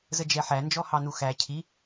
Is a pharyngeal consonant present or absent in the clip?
present